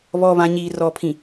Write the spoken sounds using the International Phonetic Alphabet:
β ɔ˨ β ã˨ ɲ iː˨ r ɔ˨ pʰ ĩ˨

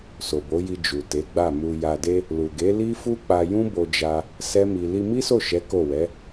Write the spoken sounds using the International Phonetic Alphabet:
s o˨ b o˨˦ j i˧ d͡ʒ u˨ t e˨˦ ɡ͡b a˦˨ m u˧ j a˧ d e˦ | l u˨ ɡ e˨˦ l i˦ f u˦ k͡p a˧ j ũ˦ b o˧ d͡ʒ a˧ | s ɛ˦ m i˧ l i˧ m i˦ s o˦˨ ʃ ɛ˨˦ k o˦˨ w ɛ˨˦

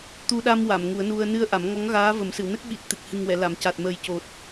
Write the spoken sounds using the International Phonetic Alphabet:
t̪ u˧ ɗ a˧ m w a˨˩˨ m ŋ u˨˩˦ ə̯ n u˧ ə̯ n ɨ˧ ə̯ ʔ a˨˩˦ m ŋ ɔ˧˥ ŋ ɣ aː˧˥ v ə˨˩˦ m s ɨ˨˩˨ w n ə˦˥ k̚ ɓ i˨˩ t̚ t̪ ɨ˨˩ k̚ h ɨ˨˩ ŋ w ɛ˨˩˨ l a˨˩˨ m c a˨˩ t̚ m ə˨˩ j c o˨˩ t̚

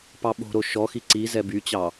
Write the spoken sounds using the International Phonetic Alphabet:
p ɑ ɓ o̤ ɾ o ʃ ɔ x i ǀ i z ɛ b y t͡ɕ ɑ

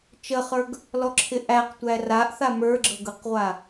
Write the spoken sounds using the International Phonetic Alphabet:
t͡ʃ ə χ ə˞ ɡ | l ɔ ǁʰ ɪ ʔ æ q tʷ æ r a ʔ θ a m ə˞ ɡ͡ǁ ɤ ɡ ɤ q ʁʷ a

